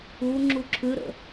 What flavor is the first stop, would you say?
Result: click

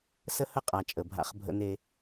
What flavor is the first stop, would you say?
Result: ejective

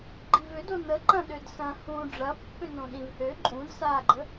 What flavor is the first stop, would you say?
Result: click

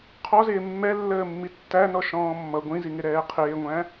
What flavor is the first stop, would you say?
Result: aspirated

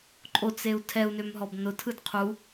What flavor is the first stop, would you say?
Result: click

